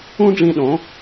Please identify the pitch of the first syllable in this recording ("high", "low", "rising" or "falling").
high